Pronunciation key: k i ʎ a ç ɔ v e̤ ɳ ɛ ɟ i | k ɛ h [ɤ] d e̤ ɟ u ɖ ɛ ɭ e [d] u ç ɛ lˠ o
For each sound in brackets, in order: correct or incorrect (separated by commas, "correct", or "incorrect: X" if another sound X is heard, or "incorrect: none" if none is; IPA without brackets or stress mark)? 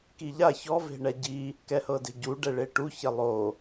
correct, incorrect: ʈ